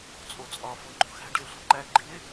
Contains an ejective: yes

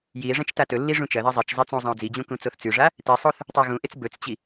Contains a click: no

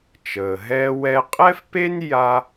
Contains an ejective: yes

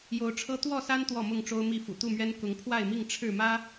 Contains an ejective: no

